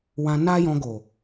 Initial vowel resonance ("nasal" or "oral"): nasal